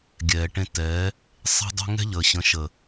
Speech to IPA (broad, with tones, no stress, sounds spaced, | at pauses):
ɡʲ ɛː˨ ʈ ẽ˧ t ɛː˨˦ | sˤ e̤˦ dˤ ɛ̤˦ ŋ ɛ̤˦ ʎ əː˨ ɕ ə̃˨˦ ʃ ə˨